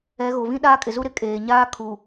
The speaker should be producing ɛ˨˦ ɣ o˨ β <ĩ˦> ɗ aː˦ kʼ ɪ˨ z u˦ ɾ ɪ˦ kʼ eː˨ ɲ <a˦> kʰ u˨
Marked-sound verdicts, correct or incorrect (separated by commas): correct, incorrect